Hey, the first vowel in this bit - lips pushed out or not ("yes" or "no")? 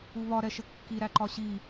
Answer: yes